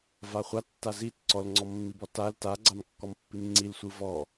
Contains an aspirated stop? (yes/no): no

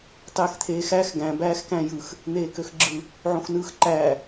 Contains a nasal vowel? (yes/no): yes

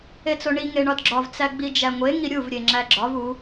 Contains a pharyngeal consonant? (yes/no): no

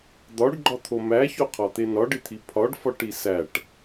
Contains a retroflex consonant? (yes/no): yes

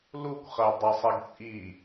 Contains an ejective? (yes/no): yes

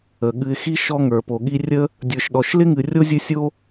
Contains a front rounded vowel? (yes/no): no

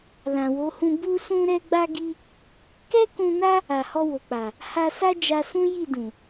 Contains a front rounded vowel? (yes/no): no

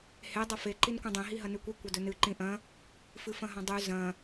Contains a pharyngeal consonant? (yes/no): no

